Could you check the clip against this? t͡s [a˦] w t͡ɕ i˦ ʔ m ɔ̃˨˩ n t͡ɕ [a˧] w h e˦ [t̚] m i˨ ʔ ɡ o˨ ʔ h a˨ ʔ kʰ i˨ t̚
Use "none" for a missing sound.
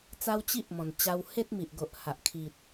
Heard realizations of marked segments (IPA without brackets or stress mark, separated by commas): a˦, a˧, t̚